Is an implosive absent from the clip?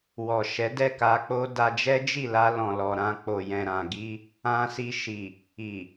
yes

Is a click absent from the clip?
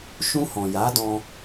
yes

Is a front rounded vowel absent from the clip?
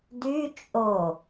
no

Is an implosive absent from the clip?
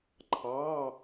yes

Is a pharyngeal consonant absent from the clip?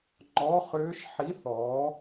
no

